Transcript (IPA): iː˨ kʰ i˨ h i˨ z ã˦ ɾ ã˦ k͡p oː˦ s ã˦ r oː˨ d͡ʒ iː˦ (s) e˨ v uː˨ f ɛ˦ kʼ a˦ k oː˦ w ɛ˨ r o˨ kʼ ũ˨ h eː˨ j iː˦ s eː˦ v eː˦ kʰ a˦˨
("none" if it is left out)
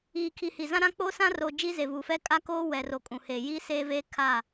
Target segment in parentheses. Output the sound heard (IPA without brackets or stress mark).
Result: z